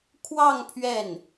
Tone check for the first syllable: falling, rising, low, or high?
falling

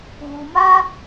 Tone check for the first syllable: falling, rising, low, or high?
low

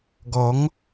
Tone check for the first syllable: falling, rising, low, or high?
rising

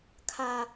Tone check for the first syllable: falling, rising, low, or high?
high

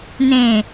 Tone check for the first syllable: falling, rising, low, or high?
low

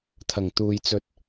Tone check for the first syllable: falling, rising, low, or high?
low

